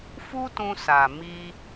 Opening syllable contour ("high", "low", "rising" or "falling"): high